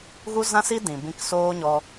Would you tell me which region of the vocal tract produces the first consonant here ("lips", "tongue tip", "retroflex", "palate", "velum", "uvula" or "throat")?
velum